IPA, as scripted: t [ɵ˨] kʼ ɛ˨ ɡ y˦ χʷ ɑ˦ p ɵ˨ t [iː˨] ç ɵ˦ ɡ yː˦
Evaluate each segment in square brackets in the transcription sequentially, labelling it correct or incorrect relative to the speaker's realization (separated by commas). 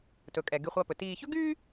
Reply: correct, correct